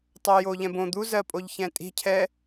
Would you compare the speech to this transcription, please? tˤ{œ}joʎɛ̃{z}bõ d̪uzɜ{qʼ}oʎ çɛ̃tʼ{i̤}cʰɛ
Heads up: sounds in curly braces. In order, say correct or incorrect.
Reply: correct, incorrect: none, incorrect: pʼ, correct

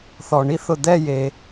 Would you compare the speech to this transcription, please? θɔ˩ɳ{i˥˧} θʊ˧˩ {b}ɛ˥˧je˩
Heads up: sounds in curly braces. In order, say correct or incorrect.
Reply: incorrect: i˥, incorrect: d̪

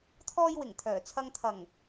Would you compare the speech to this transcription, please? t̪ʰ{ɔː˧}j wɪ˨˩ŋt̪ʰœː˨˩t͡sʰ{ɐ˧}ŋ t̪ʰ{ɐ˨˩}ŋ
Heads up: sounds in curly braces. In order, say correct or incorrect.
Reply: correct, correct, correct

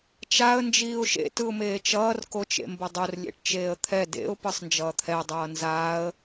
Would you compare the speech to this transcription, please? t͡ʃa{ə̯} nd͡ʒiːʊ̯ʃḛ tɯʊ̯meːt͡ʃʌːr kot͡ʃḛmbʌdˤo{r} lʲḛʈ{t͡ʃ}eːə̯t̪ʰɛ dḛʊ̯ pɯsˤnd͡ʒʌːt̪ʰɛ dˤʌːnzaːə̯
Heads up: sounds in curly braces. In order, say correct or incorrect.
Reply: correct, correct, correct

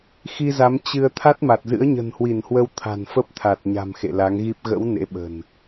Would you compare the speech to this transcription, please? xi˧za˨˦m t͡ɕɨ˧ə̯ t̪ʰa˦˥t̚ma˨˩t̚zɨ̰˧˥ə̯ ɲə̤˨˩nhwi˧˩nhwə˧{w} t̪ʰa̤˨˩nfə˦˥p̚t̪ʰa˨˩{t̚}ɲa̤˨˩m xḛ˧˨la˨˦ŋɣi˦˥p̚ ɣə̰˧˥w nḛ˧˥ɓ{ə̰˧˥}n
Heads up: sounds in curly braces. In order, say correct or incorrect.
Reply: correct, correct, incorrect: ə̤˨˩

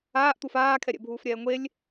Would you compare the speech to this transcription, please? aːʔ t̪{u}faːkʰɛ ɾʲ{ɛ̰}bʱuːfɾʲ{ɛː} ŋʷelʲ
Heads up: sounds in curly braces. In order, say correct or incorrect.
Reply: correct, correct, correct

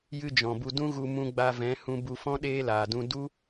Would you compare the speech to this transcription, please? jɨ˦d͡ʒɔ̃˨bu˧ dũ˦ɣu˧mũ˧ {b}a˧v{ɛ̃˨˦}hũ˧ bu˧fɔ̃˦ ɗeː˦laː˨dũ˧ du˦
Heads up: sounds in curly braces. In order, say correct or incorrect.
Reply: incorrect: ɡ͡b, correct

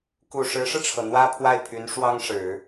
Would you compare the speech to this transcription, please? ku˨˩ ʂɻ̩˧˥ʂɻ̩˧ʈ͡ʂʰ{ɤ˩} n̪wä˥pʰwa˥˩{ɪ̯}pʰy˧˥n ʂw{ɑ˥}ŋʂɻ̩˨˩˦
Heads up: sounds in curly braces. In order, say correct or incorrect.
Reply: correct, correct, correct

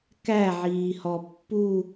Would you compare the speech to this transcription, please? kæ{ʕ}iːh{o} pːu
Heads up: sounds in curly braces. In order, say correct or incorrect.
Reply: correct, incorrect: ɔ

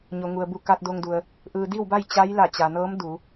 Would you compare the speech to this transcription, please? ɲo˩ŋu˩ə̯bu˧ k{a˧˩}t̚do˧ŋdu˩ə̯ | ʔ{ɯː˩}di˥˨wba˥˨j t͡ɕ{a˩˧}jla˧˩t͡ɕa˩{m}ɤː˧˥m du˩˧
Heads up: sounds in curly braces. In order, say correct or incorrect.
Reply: incorrect: a˧, correct, incorrect: a˧˥, incorrect: n

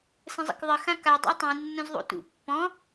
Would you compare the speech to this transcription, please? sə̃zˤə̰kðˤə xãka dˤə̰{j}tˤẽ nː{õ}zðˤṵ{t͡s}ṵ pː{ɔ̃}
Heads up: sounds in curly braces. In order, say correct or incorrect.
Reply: correct, correct, incorrect: t, correct

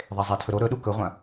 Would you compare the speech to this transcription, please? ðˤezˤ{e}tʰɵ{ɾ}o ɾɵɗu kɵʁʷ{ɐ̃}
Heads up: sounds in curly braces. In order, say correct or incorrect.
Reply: correct, correct, correct

